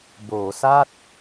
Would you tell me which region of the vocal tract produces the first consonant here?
lips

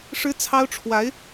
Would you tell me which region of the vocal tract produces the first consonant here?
retroflex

